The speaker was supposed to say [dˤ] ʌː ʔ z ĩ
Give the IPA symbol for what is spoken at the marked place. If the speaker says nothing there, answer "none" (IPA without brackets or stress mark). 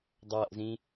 dˤ